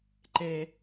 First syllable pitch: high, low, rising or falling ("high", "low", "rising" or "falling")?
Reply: high